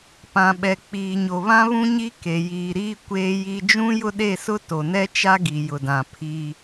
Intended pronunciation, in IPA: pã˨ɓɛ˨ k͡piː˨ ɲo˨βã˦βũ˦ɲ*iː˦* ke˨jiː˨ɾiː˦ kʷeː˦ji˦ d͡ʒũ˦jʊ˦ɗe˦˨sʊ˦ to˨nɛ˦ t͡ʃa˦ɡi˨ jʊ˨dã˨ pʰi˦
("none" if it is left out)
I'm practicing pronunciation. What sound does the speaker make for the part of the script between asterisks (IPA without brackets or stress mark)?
i˦